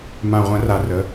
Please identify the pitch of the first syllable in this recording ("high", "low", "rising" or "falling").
low